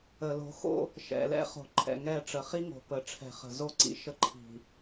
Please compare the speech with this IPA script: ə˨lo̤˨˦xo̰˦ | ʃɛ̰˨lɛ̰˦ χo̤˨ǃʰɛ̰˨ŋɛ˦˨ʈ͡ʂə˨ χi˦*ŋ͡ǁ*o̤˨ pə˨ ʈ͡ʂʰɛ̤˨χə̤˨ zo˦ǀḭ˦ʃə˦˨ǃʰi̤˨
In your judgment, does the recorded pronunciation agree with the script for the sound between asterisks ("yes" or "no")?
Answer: no